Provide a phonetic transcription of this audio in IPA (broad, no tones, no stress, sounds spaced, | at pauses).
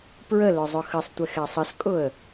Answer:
p ɹ ə l ʊ zˤ ʊ x ə sˤ tʷ ɪ x ɛ sˤ ə s kʼ ʊ ə̯